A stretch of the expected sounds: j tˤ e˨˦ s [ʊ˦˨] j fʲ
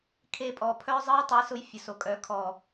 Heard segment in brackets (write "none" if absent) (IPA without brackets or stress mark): ʊ˧